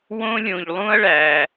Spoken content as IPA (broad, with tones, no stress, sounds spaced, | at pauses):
w õ˥ lʲ õ˧ ʎ lˠ ũ˥ ɐ̯ ɭ æ˧